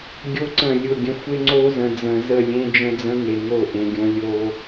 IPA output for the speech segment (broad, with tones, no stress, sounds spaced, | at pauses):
ɡʲ o˦ ǀ ə̃˦˨ lʲ ʊ˦˨ ɡʲ ə̃˦ xʷ e˦ ŋ͡ǀ o˦ z ə̃˨ d͡z ə̃˨ z ə˦˨ lʲ ẽ˦ d͡ʒ ə̃˦ d͡z ə̃˦ ŋ e˨ ŋ o˦˨ ʔ ẽ˨ ɡʲ õ˨ lʲ o˨